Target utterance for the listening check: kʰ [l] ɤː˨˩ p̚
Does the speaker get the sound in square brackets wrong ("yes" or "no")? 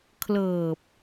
no